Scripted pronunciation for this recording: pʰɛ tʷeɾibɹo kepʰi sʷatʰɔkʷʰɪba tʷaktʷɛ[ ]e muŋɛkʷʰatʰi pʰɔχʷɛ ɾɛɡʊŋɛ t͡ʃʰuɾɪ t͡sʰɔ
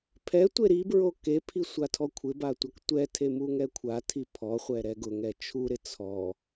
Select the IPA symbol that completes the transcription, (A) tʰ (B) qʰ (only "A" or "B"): A